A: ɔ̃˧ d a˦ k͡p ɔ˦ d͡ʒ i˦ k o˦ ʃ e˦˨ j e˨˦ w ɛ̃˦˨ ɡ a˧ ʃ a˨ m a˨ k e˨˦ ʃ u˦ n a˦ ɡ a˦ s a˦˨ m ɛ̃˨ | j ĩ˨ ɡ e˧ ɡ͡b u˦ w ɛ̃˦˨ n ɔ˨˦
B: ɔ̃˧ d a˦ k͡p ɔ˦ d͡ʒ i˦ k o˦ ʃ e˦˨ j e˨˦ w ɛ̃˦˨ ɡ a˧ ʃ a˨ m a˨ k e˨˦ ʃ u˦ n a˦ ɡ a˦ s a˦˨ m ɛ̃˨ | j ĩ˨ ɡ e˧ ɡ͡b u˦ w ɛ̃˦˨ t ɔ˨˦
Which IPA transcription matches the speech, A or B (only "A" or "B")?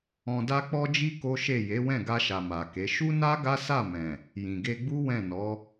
A